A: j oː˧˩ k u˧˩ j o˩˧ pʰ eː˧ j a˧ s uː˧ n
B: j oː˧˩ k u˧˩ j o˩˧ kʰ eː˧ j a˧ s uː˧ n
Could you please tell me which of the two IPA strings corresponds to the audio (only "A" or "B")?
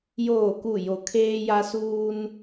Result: B